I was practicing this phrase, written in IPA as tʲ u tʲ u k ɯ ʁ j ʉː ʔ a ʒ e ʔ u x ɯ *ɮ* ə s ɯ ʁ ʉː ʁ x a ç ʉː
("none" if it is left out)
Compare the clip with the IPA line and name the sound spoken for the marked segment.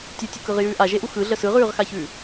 ɮ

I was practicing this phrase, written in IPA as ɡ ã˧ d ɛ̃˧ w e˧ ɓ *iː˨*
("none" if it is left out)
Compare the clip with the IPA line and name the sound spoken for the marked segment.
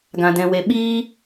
iː˦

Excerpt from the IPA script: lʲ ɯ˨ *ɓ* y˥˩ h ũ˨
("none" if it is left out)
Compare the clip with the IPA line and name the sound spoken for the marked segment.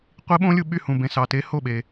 ɓ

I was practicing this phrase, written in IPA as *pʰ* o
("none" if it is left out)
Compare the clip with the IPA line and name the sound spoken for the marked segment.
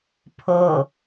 pʰ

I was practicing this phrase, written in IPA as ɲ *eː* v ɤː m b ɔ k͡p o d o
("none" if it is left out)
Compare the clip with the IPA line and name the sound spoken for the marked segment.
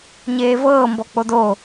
eː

